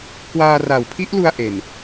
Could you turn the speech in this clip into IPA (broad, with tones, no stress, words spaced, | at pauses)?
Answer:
kwaː˧ra˨˩wpʰi˦˥ʔlu˧a̯ ʔe˨˩n